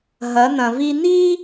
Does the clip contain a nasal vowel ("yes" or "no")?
yes